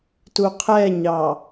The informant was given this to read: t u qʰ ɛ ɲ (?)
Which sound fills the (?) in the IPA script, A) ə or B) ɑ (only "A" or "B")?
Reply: B